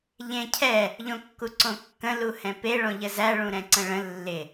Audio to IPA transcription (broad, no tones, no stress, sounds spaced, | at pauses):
ʎ ẽ cʰ ɛ | ʎ õ kː u ǀ õ kː ə̃ l u h ɛ̃ p e ɭ õ ʎ ə z æ ɭ ũ ɾ ɛ̃ ǀ ə̃ ɭ ə̃ lː ɪ